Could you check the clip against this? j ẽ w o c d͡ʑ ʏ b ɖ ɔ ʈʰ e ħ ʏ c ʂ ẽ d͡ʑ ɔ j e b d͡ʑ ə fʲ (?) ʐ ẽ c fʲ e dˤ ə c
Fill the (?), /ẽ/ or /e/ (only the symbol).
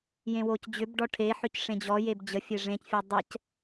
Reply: e